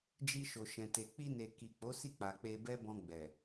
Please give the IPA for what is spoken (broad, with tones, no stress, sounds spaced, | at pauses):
d͡ʒ i˧ ʃ o˨ ʃ ɛ̃˨ t e˨ k͡p i˧ n e˨ k i˨ k͡p o˨˦ s i˦˨ k͡p a˨ k͡p e˧ b ɛ˦ b ɔ̃˧ ɡ͡b ɛ˨